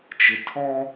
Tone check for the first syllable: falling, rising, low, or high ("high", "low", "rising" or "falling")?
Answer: low